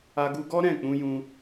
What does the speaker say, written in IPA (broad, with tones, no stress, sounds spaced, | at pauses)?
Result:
a˧ ɡ u˧ ɡ ɔ˦ ɾ ɛ̃˦˨ k͡p ũ˧ j ũ˧